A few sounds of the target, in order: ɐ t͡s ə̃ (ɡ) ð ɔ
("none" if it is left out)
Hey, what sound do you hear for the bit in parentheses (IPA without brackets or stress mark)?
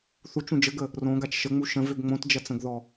ɡ